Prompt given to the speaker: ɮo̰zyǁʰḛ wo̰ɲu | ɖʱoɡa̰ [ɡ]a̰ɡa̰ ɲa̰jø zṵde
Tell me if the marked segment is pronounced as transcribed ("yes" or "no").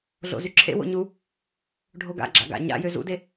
no